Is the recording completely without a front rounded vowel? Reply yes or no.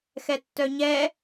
no